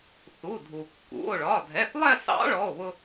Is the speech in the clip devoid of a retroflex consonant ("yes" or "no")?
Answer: no